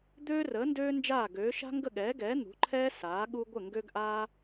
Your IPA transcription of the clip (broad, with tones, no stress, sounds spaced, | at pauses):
d̪ øː˦ r əː˨˦ n d øː˦ n d͡ʒ aː˦˨ ɡ øː˨˦ ʃ a̤˦ ŋ ɡ ə˦˨ ɠ ɛː˨˦ ɡ ɛː˨˦ n̪ ṳ˨˦ ǃʰ ɛː˦ s aː˨˦ ɠ u˦ ɡʷ ə˦˨ ŋ ɡ ø˦ ɡ ʔ aː˦